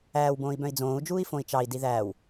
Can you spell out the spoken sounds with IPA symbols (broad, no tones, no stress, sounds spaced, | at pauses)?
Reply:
æː w b õː i̯ b œ̃ i̯ d͡z õː u̯ d͡ʒ uː i̯ f õ i̯ t͡ʃ ɑ i̯ d i ð æː w